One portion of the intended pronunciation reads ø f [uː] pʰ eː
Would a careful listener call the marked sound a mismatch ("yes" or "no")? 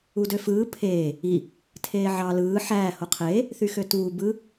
yes